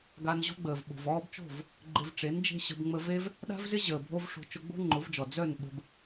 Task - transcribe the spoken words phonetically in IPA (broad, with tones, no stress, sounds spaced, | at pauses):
ɡ a˧ n ʑ o̤˦ ɡ͡b əː˨ v ɓ o̤˨ v ɔː˦ b t͡ʃ o̤˦˨ v | ɡ͡ǃ ɪ˧ v ʈ͡ʂ e˨˦ n d͡ʒ e̤˦ ɕ ə̤˧ b ŋ͡m ə˧ v e˦ v | ɗ a̤˦ v z ɪ˦ ʑ əː˨ bʱ o˦ v ʂ o̤˧ t͡ʃ ʊ˧ ɡ͡b o̤˦ ŋ͡ǃ ʊ˨˦ v d͡ʒ ɔ˨ d͡z œ˦˨ n ɓ ə̤˧ b